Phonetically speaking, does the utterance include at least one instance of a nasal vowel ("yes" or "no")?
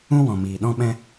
yes